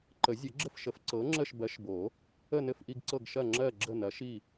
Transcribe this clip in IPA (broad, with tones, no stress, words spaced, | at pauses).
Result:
ǃə˨˩˦zʲə˨˩˦ɡ͡ǁɘ˦˨fʃə˨˩˦f ǀɤ˨˦ ŋ͡ǁə˦˨ʃbɜ˨˦ʃbo˨˩˦ | ə˦˨nɘ˦˨fʔi˦˨ɡ ǀɤ˦˨ɡʃɐ˦˨ŋ͡ǁɜ˦˨ ɡ͡ǁə˦˨nɐ˨˦ʃi˦˨